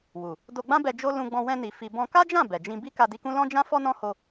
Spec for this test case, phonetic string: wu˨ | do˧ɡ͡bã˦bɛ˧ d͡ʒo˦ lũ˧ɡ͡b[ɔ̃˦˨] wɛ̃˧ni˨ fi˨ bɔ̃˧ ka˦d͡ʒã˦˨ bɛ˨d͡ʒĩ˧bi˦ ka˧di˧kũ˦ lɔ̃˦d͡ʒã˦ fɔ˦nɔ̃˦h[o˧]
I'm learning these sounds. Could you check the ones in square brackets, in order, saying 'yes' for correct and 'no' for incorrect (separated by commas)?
no, yes